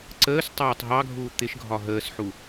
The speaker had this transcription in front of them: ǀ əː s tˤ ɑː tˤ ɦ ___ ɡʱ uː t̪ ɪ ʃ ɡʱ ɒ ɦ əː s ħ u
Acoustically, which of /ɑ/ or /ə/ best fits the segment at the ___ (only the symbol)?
ɑ